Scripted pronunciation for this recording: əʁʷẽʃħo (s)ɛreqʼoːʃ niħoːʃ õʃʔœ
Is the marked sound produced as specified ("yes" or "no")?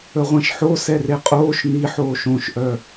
yes